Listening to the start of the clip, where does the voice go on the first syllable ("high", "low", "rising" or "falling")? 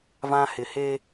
high